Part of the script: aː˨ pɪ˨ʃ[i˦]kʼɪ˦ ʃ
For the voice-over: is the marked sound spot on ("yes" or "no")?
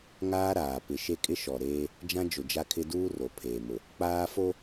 no